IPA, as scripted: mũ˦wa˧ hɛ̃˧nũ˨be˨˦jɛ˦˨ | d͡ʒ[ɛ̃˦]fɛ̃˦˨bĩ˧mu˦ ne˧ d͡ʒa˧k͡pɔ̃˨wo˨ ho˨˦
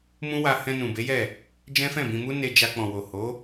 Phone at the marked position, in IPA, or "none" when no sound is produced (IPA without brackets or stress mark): ɛ̃˦